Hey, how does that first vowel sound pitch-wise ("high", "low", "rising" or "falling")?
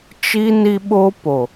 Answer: high